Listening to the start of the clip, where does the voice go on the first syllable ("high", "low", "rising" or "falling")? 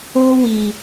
high